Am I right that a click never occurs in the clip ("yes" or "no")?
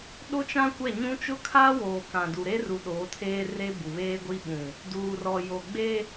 yes